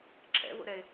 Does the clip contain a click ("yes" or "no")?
yes